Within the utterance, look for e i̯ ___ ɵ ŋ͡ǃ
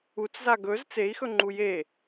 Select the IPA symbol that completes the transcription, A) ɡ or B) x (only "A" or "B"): B